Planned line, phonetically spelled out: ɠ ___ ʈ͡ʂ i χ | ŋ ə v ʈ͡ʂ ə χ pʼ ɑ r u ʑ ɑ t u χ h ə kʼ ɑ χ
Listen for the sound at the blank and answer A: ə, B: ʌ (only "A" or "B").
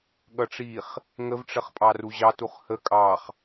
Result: B